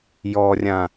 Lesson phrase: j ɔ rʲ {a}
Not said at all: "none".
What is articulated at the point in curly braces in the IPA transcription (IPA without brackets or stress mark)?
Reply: ã